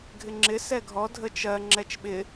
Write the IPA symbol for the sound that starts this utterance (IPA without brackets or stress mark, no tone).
ɡʱ